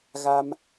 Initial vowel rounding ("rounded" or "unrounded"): unrounded